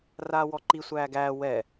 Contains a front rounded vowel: no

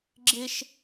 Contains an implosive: no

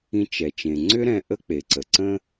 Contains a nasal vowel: yes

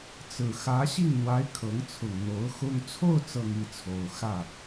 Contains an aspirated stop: yes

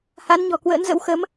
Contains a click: no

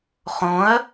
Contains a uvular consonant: yes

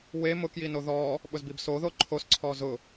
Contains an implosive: yes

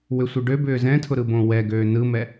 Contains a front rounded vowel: yes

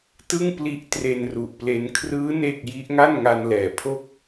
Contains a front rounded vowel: no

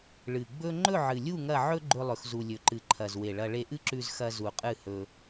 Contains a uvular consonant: yes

